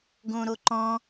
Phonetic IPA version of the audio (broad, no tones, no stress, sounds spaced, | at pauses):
ɡ õ ɾ o ǃ ɔ̃